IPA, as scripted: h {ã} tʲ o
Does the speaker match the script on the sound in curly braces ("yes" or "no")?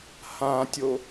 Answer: yes